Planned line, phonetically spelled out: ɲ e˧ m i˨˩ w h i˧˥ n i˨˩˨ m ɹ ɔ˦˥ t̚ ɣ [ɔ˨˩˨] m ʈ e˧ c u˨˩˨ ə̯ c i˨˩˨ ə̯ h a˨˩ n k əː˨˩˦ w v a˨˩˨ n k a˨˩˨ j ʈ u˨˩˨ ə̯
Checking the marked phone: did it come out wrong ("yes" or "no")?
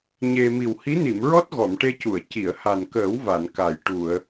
no